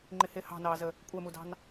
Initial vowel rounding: unrounded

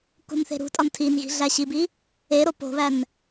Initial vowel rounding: rounded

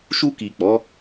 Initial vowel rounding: rounded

